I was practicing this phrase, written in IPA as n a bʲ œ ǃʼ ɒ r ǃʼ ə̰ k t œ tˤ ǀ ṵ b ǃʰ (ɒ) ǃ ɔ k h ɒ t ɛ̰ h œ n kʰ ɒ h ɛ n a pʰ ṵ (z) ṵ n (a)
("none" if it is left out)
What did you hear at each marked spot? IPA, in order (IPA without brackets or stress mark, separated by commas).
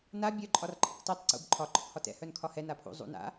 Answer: ɒ, zˤ, a̰